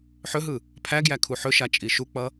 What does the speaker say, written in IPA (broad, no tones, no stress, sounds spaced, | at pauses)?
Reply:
ħ ɵ ɦ ɯ | pʰ æ ɡ j æ kʰ u ħ ɵ ʃ a t͡ʃʼ i ʃ u k͡p ʌ